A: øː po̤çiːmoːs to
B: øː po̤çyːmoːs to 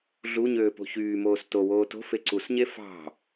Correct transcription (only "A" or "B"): B